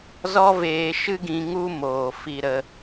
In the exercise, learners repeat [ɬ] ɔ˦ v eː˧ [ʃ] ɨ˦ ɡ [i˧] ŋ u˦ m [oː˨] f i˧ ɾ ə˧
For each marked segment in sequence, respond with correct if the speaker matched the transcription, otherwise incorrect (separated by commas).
incorrect, correct, incorrect, correct